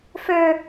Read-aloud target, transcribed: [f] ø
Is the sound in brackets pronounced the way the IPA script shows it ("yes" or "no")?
yes